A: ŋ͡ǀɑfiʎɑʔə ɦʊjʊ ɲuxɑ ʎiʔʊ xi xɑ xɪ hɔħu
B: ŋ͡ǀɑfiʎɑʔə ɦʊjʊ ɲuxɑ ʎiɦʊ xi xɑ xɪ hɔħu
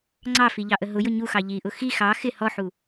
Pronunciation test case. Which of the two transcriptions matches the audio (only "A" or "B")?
A